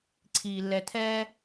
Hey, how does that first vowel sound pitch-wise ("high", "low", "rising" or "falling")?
low